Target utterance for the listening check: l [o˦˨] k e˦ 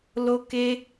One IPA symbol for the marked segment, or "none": o˦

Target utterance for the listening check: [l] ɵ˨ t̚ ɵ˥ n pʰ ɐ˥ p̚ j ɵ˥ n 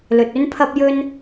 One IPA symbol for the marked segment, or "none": l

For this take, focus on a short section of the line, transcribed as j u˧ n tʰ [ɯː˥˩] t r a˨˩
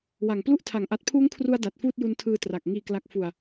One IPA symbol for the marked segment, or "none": ɯː˧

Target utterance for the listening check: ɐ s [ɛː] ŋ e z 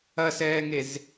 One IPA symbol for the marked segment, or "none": ɛː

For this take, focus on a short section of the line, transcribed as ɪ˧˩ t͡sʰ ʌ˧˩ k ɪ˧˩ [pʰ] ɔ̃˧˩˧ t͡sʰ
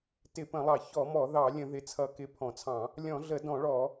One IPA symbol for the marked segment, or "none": pʰ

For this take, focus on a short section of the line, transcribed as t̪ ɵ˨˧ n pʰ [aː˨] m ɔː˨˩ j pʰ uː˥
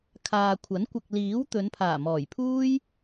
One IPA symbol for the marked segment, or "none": aː˨˩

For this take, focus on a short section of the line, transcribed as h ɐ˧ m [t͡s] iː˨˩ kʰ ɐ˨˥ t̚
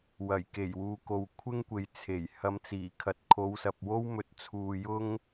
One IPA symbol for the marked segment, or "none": t͡s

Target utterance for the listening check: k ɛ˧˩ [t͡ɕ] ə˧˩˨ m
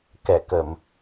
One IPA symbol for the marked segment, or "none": k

